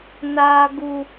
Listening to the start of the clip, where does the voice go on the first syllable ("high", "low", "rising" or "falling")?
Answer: low